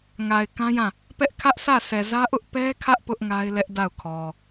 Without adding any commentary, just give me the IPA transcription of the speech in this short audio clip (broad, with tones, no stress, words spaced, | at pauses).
ŋa˨ɪ̯kã˦jã˦˨ | pɛ˦ʔkʰä˦ʔ sä˦˨ sɛ˨zä˦ʔʊ˦ʔ pɛ˦kʰä˦ʔ pʊ˦ʔŋa˦ɪ̯lɛ˦ʔ da˦˨ʊ̯kʰɔ˨